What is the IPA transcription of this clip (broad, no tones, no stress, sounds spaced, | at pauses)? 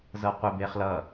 z ɤ qʷ e b e χ l ʌ